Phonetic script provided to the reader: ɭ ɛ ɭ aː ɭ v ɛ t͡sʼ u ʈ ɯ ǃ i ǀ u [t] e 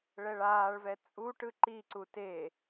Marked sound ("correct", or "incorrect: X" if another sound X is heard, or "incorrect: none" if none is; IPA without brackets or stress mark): correct